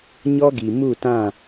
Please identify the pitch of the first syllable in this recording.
high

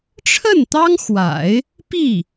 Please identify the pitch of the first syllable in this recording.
falling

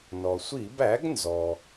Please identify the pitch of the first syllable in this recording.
low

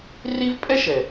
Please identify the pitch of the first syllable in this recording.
high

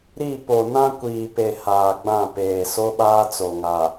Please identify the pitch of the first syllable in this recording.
falling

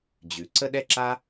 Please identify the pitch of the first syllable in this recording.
low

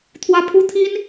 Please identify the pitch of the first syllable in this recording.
high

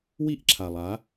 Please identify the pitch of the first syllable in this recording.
high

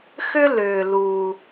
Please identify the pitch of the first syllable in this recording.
high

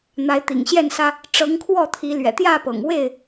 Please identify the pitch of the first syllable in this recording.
rising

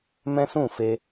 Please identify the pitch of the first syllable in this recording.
high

